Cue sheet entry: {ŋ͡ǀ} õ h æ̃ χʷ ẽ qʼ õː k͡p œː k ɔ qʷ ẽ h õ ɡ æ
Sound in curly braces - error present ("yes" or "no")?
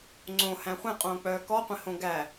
no